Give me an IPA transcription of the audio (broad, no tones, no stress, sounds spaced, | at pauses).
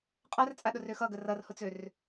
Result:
qʼ a r t͡sʼ a ɗ ʊ r ø x ʌ ɡ ə r ʌ r h ʊ t͡s ø r